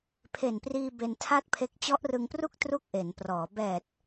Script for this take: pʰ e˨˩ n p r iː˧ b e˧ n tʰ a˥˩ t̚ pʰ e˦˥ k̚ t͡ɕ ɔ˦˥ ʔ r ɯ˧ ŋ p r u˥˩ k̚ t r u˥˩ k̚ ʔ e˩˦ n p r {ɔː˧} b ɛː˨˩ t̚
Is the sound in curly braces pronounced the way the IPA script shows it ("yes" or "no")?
no